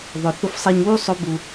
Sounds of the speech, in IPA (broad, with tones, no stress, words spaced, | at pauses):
ðˤʊ˩ θʊ˧fsˤɛ˧ɲwu˥sˤʊ˧˥ bu˧